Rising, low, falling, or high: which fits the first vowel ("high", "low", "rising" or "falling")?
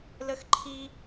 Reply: high